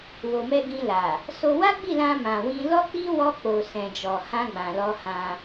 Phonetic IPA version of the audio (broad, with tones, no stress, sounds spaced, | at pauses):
w o˨ m ɛ˧ ɡ ĩ˧ l a˨ | s o˧ w a˦ ɡ͡b i˦˨ l ã˧ m ã˨ w ĩ˧ l ɔ˦ k͡p i˦ w ɔ˧ k͡p o˨ s ɛ̃˨ d͡ʒ ɔ˨ h ã˧ ɡ͡b ã˨ l ɔ˧ h ã˧